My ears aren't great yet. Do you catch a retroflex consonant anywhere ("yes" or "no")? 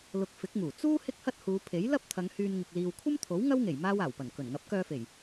no